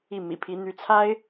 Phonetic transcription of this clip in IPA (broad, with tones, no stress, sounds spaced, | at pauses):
i˥˩ m ḭ˨˩ pʰ i˧˥ n̪ y˧˥ t͡sʰ a˥ ɪ̯